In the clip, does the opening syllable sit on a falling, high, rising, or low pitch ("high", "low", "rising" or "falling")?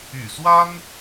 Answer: low